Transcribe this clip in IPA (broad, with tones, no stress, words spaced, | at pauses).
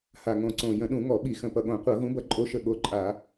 ha˨˩ŋõ˨˩ǀõ˨˩ jə̃˧˩˧ɗũ˧˩˧ŋɔ˧˩˧ɓi˧˩˧ xə̃˨˩pʌ˨˩ɠõ˧˩˧ qʷɤ˧˩˧ ɣũ˨˥bʌ˧˩˧ǃʼo˨˥ʃə˨˩ ɠo˨˥ǃʼa˧˩˧